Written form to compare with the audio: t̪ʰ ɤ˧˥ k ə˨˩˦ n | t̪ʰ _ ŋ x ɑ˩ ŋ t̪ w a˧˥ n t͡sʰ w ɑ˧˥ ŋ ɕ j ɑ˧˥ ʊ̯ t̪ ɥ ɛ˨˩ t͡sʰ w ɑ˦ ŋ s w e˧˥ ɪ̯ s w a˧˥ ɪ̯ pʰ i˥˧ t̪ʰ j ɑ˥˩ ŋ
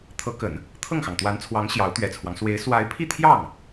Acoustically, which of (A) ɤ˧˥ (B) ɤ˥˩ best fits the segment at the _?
B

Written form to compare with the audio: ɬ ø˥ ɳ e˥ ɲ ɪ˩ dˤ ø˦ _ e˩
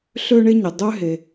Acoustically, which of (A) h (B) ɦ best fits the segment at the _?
B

